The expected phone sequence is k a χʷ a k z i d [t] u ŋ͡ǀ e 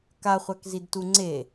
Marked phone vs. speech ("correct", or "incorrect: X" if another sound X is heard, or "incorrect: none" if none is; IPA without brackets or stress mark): correct